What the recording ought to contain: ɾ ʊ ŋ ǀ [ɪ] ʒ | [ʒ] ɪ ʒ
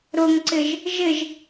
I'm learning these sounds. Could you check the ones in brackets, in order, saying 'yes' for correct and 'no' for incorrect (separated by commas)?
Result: yes, yes